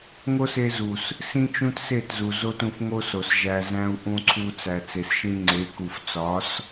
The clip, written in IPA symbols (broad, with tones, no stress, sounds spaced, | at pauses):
ŋ o˦ s e˧ z u˨ s | s ĩ˦ t͡ʃ ũ˦ t s e˦˨ t z u˨ z o˦ t ũ˧ f ŋ o˦ s o˨ s ʒ æ˨ z æ̃˧ u̯ ʔ ũ˧ ǀʰ u˧ t͡s æ˨ t͡s e˨ s ʃ ĩ˧ ŋ͡ǀ e˨˦ k u˨ f t͡s ɒ˨˦ s